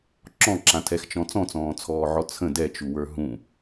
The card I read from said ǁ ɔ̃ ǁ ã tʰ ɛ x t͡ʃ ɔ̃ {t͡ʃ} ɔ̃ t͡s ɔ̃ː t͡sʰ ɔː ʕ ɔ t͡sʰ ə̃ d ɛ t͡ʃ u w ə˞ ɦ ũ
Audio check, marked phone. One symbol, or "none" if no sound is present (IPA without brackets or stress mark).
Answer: t͡s